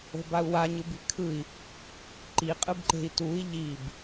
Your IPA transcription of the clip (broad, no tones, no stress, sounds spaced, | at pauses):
o̤ b a u̯ w a ɲ ɯ b i̤ kʰ ɯ i̯ | ǃ i qʼ ɯ b ǃ e̤ i̯ t u i̯ ʎ i b